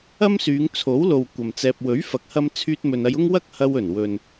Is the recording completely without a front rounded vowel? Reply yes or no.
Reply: no